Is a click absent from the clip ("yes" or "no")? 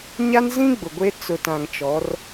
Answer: yes